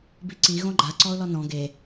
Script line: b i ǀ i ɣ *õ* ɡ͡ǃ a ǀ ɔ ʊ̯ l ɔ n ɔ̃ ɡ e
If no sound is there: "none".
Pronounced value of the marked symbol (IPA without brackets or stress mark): õ